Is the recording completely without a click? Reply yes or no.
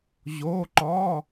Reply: no